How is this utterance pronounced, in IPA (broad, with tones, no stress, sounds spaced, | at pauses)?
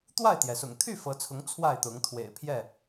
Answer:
t̪ w a˥˨ ɪ̯ t̪ j ɛ˩ s ʊ̰˨˩ ŋ t̪ʰ y˥˨ f ɤ˨˦ t͡sʰ ʊ˨˦ ŋ t͡sʰ w a˥˨ ɪ̯ t̪ ʊ˨˦ ŋ t̪ʰ w ḛ˨˩ ɪ̯ pʰ j ɛ˥˨